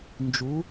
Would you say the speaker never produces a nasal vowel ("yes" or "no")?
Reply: yes